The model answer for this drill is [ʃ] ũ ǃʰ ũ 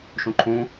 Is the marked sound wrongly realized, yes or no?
no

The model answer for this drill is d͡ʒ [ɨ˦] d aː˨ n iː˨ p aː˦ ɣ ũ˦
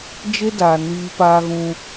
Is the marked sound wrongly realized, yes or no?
yes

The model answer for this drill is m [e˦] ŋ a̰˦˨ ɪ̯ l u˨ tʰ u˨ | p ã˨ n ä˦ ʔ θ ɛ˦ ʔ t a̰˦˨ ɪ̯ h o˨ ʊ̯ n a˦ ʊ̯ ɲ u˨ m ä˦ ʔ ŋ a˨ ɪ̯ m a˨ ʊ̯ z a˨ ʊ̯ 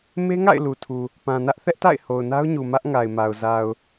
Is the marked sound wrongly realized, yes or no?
no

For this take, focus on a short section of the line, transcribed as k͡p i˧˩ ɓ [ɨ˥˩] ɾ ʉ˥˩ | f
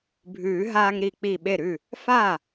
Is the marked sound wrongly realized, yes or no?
yes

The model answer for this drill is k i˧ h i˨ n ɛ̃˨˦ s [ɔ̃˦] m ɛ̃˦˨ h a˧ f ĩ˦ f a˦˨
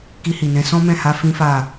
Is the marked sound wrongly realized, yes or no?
no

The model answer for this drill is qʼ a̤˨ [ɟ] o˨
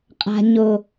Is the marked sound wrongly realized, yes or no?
yes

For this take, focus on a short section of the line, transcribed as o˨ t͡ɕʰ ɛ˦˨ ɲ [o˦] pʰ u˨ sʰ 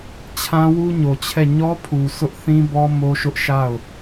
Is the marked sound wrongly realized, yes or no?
yes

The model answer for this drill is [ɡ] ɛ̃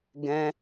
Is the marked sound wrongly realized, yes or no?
no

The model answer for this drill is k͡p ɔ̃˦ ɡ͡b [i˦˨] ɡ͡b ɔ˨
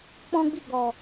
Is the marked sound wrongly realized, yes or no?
no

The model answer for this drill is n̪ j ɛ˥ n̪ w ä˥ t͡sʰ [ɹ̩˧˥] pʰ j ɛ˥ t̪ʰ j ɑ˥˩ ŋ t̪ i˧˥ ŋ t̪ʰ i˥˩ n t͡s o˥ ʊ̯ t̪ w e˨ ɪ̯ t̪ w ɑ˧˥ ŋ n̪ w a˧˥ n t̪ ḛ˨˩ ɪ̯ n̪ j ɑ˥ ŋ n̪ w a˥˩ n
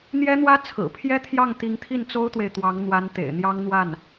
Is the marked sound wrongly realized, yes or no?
yes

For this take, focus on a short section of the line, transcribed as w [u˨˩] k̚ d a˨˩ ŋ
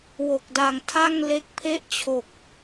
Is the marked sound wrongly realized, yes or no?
yes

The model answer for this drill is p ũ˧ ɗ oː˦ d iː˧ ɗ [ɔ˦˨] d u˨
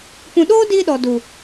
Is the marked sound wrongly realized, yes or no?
yes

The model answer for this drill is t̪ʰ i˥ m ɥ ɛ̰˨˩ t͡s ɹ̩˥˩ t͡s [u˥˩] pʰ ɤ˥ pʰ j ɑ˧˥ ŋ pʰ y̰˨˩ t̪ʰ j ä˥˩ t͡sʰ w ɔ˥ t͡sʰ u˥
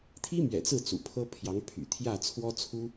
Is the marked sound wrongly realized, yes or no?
yes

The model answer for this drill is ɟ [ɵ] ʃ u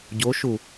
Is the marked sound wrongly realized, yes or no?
yes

